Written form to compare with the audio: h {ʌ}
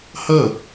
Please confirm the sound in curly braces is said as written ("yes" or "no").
yes